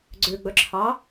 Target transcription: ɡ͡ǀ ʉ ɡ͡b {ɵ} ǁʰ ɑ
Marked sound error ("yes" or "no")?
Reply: no